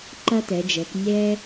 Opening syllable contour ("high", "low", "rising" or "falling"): high